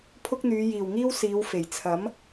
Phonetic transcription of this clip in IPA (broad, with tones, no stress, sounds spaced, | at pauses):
pʰ ʊ˥ k̚ n̪ yː˨˧ j iː˨˩ w ŋ iː˥ w s iː˨˧ w f e˨˩ j t͡sʰ ɐ˨˥ m